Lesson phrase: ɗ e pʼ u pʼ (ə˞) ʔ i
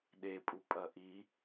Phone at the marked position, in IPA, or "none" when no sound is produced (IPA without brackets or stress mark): ɐ